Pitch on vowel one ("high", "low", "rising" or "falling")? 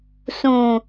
low